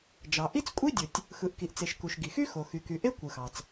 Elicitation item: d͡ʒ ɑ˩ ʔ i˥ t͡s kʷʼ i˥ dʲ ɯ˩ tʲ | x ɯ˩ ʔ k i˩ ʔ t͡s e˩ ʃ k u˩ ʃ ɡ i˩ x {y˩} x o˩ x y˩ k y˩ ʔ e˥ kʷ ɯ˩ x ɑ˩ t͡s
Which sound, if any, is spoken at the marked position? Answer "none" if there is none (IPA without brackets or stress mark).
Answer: y˥